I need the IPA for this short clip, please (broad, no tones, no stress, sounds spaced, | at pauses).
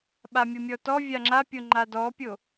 ɓ a mʲ o mʲ ɔ t ɔ vʲ a ŋ͡ǁ a pʲ o ŋ͡ǃ a d ɔ pʲ o